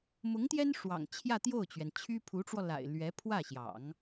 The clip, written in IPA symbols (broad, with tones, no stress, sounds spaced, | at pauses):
m ʊ˧˥ ŋ t̪ j ɛ˥ n ʂ w ɑ̰˨˩ ŋ t͡ɕʰ j ä˥˧ t̪ j o˥˩ ʊ̯ t͡ɕ ɥ ɛ˩ n t͡ɕʰ y˥ pʰ u˧˥ ʈ͡ʂ w ɔ˧ l a̰˨˩ ɪ̯ l ɥ ɛ˧˥ pʰ w ä˥˩ ɕ j ɑ̰˨˩˦ ŋ